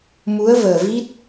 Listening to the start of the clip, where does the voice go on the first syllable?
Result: rising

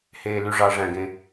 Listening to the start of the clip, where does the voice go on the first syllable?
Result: low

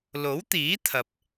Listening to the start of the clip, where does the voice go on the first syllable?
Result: rising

